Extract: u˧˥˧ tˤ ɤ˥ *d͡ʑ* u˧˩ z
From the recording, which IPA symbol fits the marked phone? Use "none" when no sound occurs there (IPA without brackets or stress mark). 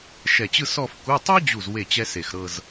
d͡ʑ